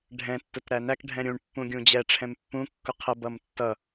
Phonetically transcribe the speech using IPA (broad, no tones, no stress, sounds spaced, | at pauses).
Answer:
ɖʱ ɛ̃ tː ʊ t ɾ æ n æ k ɖʱ ɛ̃ ɾʲ ũ ɳ pː ũ ɡʲ ũ d͡ʑ ɛ ʈ͡ʂʰ ɛ̃ m pː ũ kː ʊ qʰ ə b ʌ m tː ʌ